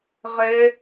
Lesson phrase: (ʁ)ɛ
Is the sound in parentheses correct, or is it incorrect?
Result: correct